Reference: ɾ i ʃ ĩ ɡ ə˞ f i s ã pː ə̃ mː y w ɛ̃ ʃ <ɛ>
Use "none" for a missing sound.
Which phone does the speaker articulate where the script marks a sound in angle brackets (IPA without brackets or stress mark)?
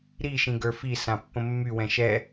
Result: ɛ